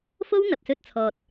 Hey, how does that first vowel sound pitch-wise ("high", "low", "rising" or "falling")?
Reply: high